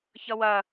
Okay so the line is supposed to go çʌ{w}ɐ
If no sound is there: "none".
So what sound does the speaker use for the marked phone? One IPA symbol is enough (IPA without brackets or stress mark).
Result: w